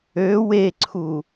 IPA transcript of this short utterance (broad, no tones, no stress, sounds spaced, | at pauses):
ø w e ǀʰ u